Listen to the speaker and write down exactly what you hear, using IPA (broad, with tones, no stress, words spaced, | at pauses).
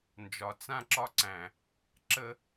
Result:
nd͡ʒɒ˨t͡sã˧ǁɒ˧ǀæ̃˨ | ǁə˧